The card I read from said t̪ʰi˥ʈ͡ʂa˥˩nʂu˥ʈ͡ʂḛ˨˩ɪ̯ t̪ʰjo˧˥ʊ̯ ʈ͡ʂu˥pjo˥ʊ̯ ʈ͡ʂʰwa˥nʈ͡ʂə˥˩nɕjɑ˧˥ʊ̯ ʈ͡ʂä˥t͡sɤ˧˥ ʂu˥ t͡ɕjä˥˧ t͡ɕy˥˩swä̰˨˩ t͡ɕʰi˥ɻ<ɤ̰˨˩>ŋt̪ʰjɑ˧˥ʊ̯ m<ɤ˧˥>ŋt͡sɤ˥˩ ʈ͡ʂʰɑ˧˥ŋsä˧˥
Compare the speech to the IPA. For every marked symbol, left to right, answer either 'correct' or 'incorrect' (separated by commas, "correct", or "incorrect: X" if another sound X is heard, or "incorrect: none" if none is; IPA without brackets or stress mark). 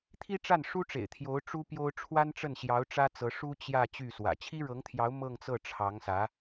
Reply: incorrect: ɤ˧˥, incorrect: ɤ˥˧